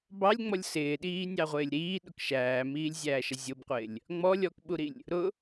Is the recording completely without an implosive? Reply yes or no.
no